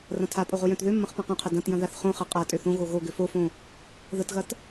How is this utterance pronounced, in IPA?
r ɐ̃ tʰ a pʼ o ʁ o j œ̃ t ð ø mː ɐ̃ χ p ã q œ̃ qʰ ɐ d ɐ̃ t j ɐ̃ ð a θ χ õ χ ɐ qʼ a tʼ ø θ õ ɣ o ɣ o ɡ ʏ f o f õ | ð ə t ɣ ɐ t

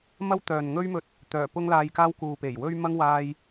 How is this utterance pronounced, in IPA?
m ɐ˥ w t̪ œː˨ n ŋ ɵ˥ ɥ m ɵ˧ t̚ | t̪ œː˨˩ p ʊ˥ ŋ l aː˧ j k aː˥ w k uː˨ p e˨˩ j w ɵ˥ ɥ m ɐ˥ ŋ w aː˥ j

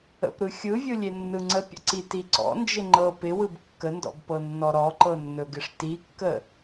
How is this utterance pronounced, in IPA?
ə̰ p ɾ ɯ xʲ ɯ vʲ ɯ lʲ e nː ɯ ŋ͡ǀ ə pʲ ə̰ ǀ i t i ǀ ɔ̰ n d͡ʒ ɪ ŋ͡ǃ ɤ p ɪ w ɯ b kː ə n d ɔ̰ b p ɤ nː ɔ ɾ ɔ ǃ ɤ nː ɵ ɡ ɪ ʂ t i kː ə

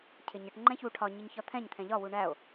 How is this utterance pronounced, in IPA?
cʰ ɪ ɲ ə ʈ ŋ͡ǃ ɛ̃ ç u ʈʰ ɒ ɲ i ɲ ç ɒ t̪ʰ ɛ̃ ɲ t̪ʰ ɛ̃ ʎ ɒ w u ɳ æ o̯

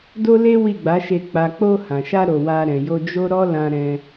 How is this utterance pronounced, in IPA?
d o˦ l e˦ w i˦˨ ɡ͡b a˨˦ ʃ e˧ k͡p a˨ k͡p o˧ h ã˨ ʃ a˧ ɾ o˨ w a˧ ɾ ɛ̃˨ j o˧ d͡ʒ o˦ ɾ ɔ˦ l ã˧ ɾ ɛ̃˧

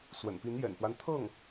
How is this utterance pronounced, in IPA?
s w ə̰˨˩ n p i˧˥ n j ɛ̰˨˩ n f w a˦ n t̪ʰ ɤ˥˩ ŋ

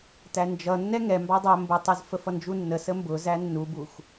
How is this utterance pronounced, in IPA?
t æ n d͡ʒ ʌ nː ɛ ŋ ɛ m b ɑ dˤ æ m b ʊ tˤ ɛ z f ə f ʌ n d͡ʒ u nː ə s ə m b ʊ z æ nː u b u x

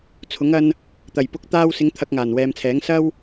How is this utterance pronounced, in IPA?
t͡sʰ ʊ˨˥ ŋ ɐ˥ n | t̪ ɐ˨˩ j p ʊ˧ k̚ t̪ aː˧ w s ɪ˨˧ ŋ t̪ʰ ɐ˧ k̚ ŋ aː˨˩ n w ɛː˨ m t͡sʰ ɛː˨˥ ŋ s ɐ˥ w

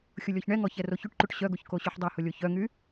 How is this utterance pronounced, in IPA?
xʲ ʊ lʲ ɔ ç ɳ ɛ ŋ ɔ ç ɛ r o ç y ʈ ǃ y ʈ ɕ œ ɡ o ç k o ɕ y ħ dˤ ɛ h ʊ lʲ o ç œ ŋ y

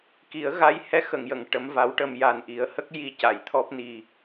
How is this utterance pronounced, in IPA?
k i˨˩˦ ə̯ ɣ a˧ j h ɛ˧ x ə˨˩˨ ŋ j ə˨˩˨ ŋ ʈ ə˧˥ m v a˧˥ w ʈ ə˧ m j a˨˩ n ʔ i˨˩˦ ə̯ h ə˦˥ k̚ j i˧ c a˨˩˨ j t̪ʰ ɔ˦˥ p̚ n i˨˩

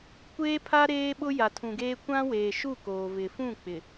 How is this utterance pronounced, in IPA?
kʷ eː˦ pʰ a˦ ɾ eː˦ ɓ ʊ˦ j a˨ tʰ ũ˨ ɡ eː˦ kʷ ã˦ w eː˨ ʃ u˦˨ k oː˨ v ɪ˨ f ũ˦˨ k͡p ɪ˨

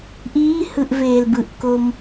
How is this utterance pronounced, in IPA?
ʔ iː h ɯ ʔ v eː l b ɯ ʔ k o m

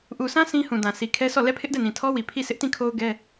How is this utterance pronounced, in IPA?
ʔ u˨ s ã˦ s ĩ˦ h ũ˨ d ã˨ s i˨ kʰ ɛ˦ s ɔ˦˨ l ɛ˦˨ pʰ ɪ˦ ʔ d ɛ˦˨ n ĩ˨ tʰ ɔ˦ w i˨ pʰ i˦˨ sʰ ɪ˦ ʔ t ĩ˦˨ kʰ o˦ ʊ̯ ɡ ɛ˦

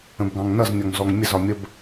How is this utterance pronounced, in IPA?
ə̃ b ɡ ɑ̃ ŋ n ʌ z nʲ ɔ ŋ z ɔ ŋ mʲ ə z ɒ mʲ ə b

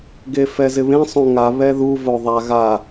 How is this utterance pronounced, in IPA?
ɡ e f ɛ z ɪ β ẽ sˤ õ ŋ a β ɛ ð u v o ðˤ a ɣ a

